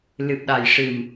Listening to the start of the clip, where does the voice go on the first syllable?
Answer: low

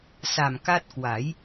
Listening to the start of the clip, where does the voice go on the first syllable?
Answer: low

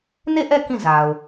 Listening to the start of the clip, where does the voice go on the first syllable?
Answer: falling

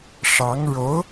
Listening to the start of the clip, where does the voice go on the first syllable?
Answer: rising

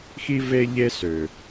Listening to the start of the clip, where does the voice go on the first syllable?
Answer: high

